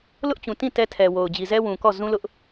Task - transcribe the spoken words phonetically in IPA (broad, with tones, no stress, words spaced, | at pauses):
lʊ˦ʔt͡ɕũ˨ tĩ˦˨ tɛ˦tʰɛ˨wo˨ʊ̯ d͡ʑi˨zɛ˦wũ˨ kɔ˦˨ zũ˦lʊ˦ʔ